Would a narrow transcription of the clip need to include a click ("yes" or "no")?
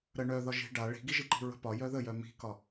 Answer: yes